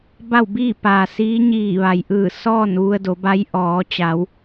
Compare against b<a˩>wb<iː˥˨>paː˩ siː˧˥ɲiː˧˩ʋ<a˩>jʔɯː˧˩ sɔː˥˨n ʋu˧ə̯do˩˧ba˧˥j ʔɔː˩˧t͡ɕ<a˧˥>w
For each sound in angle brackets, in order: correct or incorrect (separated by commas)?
incorrect, correct, correct, incorrect